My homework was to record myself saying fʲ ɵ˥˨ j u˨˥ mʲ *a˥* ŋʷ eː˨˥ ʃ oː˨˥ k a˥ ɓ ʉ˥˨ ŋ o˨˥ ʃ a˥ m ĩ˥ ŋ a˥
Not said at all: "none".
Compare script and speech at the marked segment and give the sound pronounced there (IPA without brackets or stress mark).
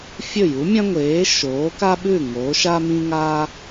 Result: ã˥